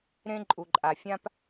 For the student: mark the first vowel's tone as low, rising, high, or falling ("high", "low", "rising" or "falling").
high